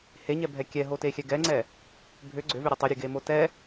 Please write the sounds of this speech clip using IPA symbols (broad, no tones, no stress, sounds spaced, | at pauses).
h e ɲ ɛ bʱ ɛ kʲ ɛ ɦ o t e xʲ ɛ ɡ ɛ ŋ͡ǀ ɛ | bʱ ʏ ɡ͡ǀ ʏ v ʏ ɾʲ e tˤ ʏ ɾʲ e ɡ e m o t ɛ